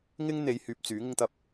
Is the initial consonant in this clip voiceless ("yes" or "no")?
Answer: no